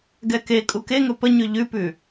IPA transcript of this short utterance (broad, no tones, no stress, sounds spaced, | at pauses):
ɡ ɛ k e kʼ u k e ŋ ɵ p ə ɲ ʉ ʎ ʉ p ʉ